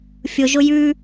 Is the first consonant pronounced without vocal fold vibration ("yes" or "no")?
yes